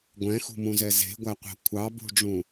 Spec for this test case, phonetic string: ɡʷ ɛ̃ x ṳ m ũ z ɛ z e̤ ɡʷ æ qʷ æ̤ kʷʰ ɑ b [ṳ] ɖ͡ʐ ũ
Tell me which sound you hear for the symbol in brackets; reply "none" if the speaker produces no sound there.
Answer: ṳ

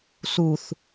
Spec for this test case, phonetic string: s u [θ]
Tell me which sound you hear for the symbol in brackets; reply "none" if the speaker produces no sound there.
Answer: θ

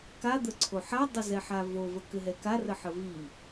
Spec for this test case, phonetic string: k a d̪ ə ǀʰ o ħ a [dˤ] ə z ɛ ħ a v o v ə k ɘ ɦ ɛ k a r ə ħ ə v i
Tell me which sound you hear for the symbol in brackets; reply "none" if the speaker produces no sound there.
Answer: dˤ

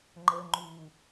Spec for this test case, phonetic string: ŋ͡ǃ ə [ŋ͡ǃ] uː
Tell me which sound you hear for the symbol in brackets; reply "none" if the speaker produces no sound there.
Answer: ŋ͡ǃ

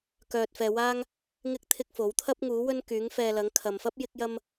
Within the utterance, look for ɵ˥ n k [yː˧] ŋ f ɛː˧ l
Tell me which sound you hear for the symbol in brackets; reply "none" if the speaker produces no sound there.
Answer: yː˨˥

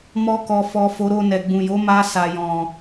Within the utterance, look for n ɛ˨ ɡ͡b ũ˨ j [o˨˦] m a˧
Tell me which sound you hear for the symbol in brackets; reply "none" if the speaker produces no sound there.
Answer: o˨˦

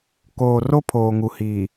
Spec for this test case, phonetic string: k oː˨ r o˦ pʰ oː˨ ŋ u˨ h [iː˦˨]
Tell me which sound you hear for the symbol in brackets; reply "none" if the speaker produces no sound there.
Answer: iː˨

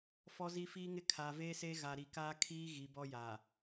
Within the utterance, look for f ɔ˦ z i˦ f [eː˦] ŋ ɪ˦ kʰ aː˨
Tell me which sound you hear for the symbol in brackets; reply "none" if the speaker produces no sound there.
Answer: iː˦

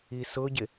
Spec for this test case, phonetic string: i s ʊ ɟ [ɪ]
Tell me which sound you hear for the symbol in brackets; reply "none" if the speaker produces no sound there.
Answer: ɪ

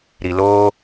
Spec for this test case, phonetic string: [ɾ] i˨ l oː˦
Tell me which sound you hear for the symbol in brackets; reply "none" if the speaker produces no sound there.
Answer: ɾ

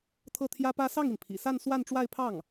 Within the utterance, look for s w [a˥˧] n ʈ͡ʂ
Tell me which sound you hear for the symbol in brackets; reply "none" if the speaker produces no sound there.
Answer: a˥˧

